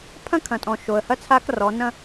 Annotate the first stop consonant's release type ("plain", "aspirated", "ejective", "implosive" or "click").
aspirated